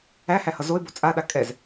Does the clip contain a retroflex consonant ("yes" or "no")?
no